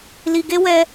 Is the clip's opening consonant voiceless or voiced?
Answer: voiced